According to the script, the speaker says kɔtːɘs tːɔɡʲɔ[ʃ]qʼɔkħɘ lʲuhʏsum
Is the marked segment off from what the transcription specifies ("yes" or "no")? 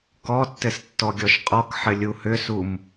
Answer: no